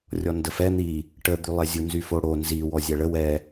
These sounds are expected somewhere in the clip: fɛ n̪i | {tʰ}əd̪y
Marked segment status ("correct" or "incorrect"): incorrect